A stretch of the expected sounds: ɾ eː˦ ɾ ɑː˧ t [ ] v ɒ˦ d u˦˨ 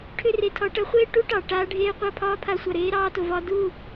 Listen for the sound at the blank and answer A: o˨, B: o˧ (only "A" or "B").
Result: A